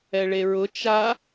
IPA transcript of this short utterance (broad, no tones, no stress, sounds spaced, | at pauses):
ɛ ɭ e ɹ ʊ t͡ʃ a